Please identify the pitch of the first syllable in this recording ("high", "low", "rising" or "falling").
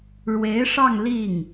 rising